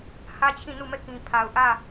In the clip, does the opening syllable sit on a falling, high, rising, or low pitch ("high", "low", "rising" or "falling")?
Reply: high